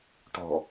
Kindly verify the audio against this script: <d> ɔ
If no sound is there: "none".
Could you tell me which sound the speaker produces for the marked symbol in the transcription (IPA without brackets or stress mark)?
ʈ